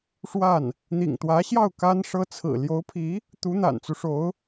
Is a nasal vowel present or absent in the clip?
absent